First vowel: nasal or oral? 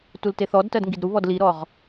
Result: oral